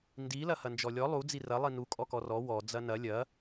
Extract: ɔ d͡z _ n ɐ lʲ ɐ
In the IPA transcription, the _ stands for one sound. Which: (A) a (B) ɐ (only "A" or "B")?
B